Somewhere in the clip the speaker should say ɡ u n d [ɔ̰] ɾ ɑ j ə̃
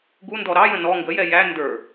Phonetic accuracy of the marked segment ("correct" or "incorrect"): incorrect